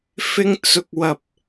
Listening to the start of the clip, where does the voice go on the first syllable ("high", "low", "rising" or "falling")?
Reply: high